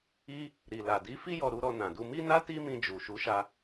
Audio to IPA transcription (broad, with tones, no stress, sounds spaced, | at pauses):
i˧ | ɾ i˨ l a˨ d i˨˦ f i˦ j ɔ˧ ɾ u˧ ɾ ɔ˧ n ã˨ d u˧ m i˦ n a˦ t i˦ m ĩ˧ d͡ʒ u˨ ʃ u˨˦ ʃ a˧